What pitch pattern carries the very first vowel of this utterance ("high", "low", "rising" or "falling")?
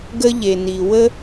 high